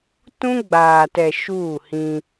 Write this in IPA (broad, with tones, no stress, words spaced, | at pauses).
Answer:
tũ˦ɡ͡baː˨tɛ˨ ʃuː˦˨hĩ˦